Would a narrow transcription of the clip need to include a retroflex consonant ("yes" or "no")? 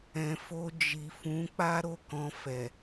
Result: no